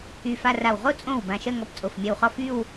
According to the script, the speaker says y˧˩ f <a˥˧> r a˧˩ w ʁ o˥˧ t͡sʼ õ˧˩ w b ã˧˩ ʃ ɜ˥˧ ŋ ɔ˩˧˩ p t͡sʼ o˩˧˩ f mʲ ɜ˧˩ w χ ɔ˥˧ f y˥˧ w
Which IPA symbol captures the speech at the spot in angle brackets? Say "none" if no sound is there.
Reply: a˥˧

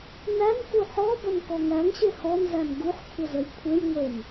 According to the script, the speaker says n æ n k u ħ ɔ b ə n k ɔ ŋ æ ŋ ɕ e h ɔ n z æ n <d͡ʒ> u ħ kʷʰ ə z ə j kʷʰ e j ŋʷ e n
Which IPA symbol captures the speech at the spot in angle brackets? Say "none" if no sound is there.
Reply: ɡ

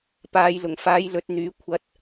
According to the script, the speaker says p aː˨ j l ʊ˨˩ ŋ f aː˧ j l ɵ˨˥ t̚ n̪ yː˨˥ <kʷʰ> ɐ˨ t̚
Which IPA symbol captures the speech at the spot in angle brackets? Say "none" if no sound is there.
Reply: kʷʰ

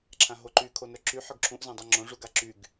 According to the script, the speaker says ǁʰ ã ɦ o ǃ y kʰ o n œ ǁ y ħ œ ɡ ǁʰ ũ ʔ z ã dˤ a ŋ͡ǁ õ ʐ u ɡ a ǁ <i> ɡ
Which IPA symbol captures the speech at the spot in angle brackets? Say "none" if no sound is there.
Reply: y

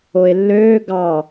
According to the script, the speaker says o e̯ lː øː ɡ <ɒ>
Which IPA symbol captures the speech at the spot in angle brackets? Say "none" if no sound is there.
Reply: ɑ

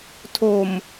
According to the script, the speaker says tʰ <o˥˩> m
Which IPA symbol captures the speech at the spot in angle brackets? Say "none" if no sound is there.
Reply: o˨˩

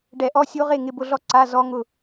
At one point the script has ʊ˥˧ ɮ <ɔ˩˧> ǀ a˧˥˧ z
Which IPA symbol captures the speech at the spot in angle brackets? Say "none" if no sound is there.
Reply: ɔ˥˧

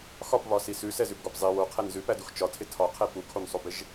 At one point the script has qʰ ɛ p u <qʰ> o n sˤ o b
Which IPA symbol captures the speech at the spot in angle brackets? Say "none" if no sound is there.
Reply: kʰ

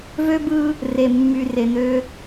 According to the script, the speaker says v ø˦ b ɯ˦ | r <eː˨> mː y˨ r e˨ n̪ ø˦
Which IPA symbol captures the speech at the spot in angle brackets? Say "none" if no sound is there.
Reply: e˨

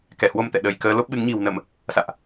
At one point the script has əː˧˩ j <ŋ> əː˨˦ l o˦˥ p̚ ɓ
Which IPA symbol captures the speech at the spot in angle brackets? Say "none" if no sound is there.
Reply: k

